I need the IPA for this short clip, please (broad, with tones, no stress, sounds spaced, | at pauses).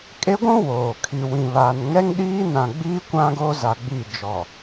kʼ e˦ ɡʷ ũ˦ w oː˨ kʰ i˨ w ĩ˨ β aː˨ n ŋ ɛ˦ ŋ ɗ iː˦ n ã˨ ɡ͡b iː˦ kʷ ã˦ ɡ oː˦ z a˨ ɡ͡b iː˦˨ d͡ʒ ɔ˨